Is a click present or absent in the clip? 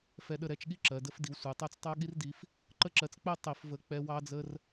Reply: present